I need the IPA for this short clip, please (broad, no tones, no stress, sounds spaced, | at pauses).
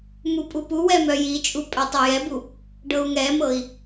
m u pʼ u p u w ɛ m œ j i t͡ʃʼ u pʼ œ tˤ ɤ j ɛ b u | ɖ ɤ u̯ ŋ ɛ m ɤ i̯